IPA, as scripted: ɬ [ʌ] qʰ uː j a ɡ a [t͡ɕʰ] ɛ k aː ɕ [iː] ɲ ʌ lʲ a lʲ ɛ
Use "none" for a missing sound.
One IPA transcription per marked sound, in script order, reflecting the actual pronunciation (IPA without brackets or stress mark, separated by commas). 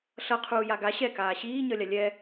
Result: ʌ, ɕ, iː